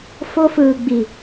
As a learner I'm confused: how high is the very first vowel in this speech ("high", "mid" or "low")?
mid